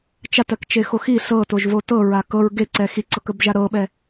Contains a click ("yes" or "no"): yes